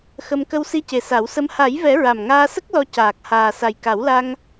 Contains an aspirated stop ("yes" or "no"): no